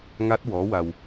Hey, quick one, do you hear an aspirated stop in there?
no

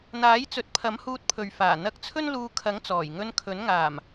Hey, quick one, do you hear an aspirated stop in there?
yes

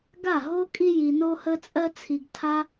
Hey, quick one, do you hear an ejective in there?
yes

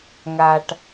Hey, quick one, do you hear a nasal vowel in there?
no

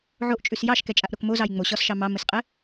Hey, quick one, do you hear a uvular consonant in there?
yes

